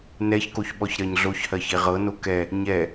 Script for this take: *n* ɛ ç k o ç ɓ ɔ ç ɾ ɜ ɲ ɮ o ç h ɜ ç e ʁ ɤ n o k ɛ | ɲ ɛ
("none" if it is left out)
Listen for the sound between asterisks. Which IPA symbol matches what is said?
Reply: n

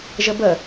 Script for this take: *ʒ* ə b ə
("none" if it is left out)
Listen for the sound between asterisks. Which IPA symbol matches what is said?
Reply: ʒ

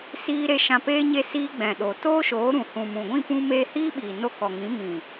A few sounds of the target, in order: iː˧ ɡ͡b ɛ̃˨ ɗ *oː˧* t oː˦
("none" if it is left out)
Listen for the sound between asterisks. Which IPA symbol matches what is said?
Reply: oː˨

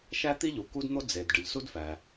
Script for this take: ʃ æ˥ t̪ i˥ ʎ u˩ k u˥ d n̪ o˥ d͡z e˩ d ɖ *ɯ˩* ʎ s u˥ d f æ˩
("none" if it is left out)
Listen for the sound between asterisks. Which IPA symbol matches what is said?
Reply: ɯ˩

